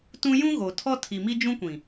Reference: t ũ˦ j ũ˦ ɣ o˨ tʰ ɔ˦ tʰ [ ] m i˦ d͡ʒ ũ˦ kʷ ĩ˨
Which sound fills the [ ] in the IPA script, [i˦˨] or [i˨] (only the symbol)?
i˨